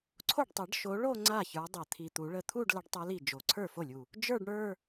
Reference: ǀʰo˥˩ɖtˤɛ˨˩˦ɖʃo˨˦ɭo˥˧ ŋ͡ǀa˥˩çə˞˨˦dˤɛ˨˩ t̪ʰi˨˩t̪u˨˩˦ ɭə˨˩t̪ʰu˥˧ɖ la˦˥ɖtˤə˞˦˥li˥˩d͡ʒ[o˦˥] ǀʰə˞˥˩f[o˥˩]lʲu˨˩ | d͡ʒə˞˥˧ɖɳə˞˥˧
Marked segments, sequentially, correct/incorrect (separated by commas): incorrect, correct